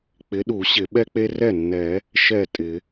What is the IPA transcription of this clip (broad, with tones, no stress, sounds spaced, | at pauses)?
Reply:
k͡p ɪ˨˥ ɗ u˨˩˦ ɕ ɪ˨˩˦ ɓ ɛ˦ k͡p e˦ r ɛ˥˩ nː ɛ˨˩˦ | ʃ ɛ˥˩ tʼ ɪ˨˩˦